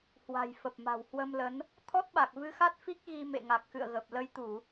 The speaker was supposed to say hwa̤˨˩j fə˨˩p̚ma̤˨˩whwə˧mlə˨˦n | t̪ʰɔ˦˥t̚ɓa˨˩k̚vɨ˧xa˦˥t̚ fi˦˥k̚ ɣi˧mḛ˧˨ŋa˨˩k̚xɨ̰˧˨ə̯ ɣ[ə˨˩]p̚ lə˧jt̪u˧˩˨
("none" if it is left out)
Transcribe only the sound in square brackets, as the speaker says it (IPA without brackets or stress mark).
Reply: ə˨˩